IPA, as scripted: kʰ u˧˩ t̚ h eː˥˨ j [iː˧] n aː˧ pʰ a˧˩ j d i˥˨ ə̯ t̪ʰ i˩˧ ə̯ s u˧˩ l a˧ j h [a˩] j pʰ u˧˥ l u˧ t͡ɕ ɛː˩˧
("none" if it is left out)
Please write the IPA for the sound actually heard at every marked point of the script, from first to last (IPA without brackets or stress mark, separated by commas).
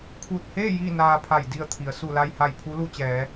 iː˥˨, a˧˩